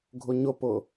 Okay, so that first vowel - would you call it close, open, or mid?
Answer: close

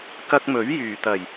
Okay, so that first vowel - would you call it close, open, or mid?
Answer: open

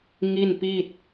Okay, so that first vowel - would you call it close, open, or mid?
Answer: close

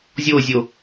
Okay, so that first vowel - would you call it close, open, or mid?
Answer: mid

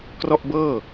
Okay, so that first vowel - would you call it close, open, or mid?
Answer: mid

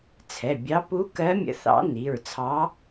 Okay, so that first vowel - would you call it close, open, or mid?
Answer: mid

